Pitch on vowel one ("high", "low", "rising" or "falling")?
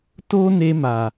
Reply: high